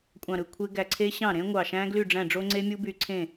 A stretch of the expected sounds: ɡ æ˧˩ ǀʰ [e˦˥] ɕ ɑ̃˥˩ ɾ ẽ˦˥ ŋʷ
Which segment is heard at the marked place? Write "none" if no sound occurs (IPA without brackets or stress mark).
e˦˥